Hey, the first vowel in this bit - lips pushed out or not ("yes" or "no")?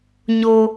yes